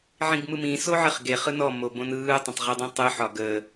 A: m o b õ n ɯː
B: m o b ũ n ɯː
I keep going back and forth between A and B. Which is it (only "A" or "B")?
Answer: A